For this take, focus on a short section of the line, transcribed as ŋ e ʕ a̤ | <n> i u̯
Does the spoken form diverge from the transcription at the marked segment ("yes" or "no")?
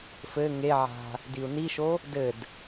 yes